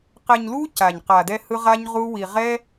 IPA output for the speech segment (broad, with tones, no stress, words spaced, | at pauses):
qɛ˧ɲlu˦ca˨ɲ qa˨dɛ˧ hɯ˦ʁa˦ɲʁu˦ wi˧ ʁɛ˦